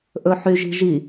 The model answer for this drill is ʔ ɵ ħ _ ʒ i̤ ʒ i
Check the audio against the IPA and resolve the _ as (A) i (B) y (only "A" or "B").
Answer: B